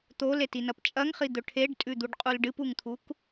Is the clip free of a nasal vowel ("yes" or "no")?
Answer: yes